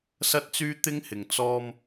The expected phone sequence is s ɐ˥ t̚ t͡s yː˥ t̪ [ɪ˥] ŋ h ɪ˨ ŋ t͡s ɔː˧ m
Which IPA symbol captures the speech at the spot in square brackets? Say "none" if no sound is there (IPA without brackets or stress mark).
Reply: ɪ˥